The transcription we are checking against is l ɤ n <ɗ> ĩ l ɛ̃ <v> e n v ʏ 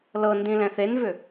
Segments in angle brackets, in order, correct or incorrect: incorrect: d, incorrect: θ

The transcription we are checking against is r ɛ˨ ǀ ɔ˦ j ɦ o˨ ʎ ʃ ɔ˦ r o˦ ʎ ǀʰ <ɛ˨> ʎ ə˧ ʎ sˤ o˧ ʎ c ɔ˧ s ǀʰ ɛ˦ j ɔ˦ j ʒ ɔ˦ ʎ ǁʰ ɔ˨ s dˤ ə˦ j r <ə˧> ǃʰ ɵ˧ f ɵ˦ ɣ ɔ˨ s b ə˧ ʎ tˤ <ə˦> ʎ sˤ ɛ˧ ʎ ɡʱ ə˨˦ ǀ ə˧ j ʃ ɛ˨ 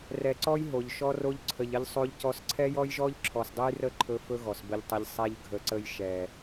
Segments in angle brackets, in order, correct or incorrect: incorrect: ə˨, incorrect: ə˦˨, incorrect: ə˧

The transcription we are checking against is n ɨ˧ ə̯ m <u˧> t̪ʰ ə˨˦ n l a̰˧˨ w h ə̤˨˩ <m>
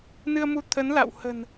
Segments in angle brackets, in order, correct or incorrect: correct, incorrect: n

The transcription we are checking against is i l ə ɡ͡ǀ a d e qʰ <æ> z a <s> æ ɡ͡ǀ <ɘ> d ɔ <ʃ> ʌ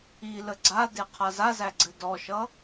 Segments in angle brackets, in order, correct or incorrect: incorrect: a, incorrect: z, correct, correct

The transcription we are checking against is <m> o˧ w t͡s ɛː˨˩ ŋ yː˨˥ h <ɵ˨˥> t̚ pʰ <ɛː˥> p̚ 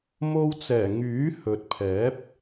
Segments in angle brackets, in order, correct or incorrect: correct, correct, incorrect: ɛː˨˥

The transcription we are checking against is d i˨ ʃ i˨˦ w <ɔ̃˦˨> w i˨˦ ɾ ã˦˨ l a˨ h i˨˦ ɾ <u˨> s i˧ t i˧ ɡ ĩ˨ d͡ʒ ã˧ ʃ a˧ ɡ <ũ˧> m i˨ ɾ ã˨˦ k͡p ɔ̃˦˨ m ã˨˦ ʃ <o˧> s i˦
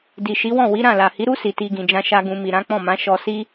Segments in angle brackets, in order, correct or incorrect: correct, incorrect: u˦, correct, incorrect: ɔ˧

